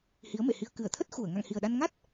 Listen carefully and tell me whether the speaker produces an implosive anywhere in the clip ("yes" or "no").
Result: yes